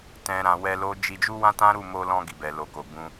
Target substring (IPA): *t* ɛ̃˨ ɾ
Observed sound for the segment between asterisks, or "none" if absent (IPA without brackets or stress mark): t